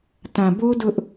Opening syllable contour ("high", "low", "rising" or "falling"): low